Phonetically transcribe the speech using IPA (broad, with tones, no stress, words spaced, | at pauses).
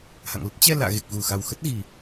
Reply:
ha̰˧˨ŋlə˦˥t̚ t͡ɕɛ˧ la̰ː˧˨ɣe˨˩k̚ ɣu˨˩ xa˨˩wxə˦˥t̚ɣi˨˩